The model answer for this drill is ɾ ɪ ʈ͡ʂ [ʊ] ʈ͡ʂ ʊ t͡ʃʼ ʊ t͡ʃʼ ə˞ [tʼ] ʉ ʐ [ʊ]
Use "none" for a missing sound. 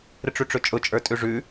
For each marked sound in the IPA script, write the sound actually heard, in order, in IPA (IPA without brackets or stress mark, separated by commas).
ʉ, tʼ, ʉ